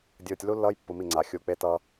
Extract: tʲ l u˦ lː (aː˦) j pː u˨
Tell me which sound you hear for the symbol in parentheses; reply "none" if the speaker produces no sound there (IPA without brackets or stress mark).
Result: ʌː˦